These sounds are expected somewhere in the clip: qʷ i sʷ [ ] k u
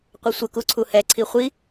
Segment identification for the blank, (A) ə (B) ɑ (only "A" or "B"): A